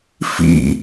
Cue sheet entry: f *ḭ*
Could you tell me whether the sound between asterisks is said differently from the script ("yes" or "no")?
no